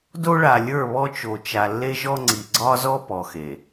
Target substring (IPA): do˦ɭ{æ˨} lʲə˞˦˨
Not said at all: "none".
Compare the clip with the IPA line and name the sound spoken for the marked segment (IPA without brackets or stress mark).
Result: a˨